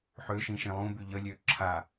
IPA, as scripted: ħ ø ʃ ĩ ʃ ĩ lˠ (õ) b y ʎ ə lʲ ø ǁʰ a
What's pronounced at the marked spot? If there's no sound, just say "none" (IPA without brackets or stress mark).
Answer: ũ